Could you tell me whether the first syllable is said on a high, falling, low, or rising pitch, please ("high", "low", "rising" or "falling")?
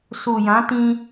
low